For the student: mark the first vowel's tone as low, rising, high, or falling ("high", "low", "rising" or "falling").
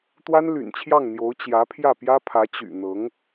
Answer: high